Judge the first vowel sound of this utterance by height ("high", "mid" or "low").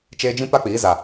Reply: mid